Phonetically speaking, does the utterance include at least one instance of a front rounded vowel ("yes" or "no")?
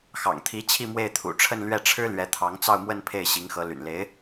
yes